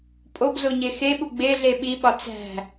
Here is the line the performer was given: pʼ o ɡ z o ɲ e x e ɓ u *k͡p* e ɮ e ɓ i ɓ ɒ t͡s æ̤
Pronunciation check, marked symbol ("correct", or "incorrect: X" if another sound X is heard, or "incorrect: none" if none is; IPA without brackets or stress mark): incorrect: ɡ͡b